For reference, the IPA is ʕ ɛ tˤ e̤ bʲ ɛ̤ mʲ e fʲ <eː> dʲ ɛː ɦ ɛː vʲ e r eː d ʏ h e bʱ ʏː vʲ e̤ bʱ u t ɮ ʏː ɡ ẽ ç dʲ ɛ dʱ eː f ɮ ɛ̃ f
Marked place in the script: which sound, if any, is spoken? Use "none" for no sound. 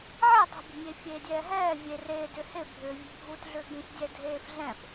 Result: eː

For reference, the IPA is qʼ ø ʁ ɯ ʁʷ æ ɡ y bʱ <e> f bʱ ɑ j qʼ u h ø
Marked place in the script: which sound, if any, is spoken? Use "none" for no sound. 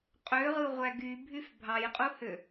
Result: y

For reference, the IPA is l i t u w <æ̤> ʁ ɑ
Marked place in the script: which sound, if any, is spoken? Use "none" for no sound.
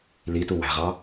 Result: æ̤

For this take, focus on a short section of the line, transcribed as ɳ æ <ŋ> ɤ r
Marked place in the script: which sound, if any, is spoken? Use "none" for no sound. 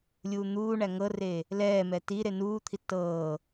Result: ŋ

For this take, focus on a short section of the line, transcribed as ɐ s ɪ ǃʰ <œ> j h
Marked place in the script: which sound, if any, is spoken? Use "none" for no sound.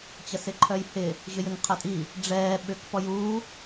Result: œ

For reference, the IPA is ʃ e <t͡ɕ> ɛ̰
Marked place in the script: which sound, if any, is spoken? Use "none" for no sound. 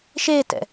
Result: t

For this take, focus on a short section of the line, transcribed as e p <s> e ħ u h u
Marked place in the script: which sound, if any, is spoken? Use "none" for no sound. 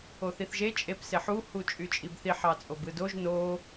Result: s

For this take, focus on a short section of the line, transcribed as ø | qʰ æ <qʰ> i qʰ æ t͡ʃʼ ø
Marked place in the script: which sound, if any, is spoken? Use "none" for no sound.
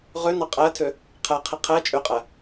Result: qʰ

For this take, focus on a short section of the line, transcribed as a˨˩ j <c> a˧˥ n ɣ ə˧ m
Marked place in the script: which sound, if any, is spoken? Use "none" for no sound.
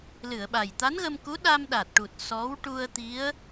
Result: t̪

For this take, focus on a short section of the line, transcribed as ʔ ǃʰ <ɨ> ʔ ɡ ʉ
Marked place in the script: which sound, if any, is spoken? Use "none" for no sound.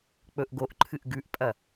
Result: ɨ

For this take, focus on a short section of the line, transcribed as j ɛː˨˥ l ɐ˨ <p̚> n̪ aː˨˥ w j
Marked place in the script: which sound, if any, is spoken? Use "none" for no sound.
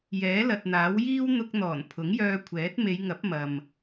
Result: t̚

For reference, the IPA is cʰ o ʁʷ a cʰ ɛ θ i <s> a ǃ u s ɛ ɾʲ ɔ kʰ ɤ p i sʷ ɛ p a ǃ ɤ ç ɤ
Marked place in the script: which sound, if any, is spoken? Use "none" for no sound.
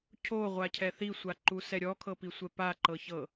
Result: sʷ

